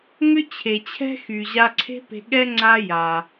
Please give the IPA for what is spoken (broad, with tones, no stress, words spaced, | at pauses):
ŋʏ˥t͡ɕʰe˩t͡ɕʰɛ̤˥xy˩ ʑa˧ǀʰe̤˥pe̤˧ɠɛ˥ ŋ͡ǀa˥ja˩